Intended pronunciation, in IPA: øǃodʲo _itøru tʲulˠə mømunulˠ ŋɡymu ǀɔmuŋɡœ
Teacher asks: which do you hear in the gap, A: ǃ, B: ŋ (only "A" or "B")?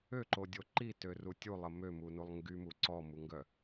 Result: A